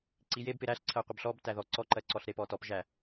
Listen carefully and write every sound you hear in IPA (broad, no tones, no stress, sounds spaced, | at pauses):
ǀ i j e b p ɪ ɾ æ ɬ ǀʰ ɜ qʷ ɪ b ɬ ɔ b t æ ð ɔ ǀ ɔ ǃ ɜ ǀ ɔ ɬ ɾ e p ɔ t ɔ p ʒ æ